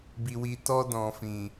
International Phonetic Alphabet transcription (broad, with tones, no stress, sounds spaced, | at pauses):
b i˨ w i˨ t ɔ˧ d ɔ̃˨ f ĩ˨